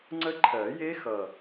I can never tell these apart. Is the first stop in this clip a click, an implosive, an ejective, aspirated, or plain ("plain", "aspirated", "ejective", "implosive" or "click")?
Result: click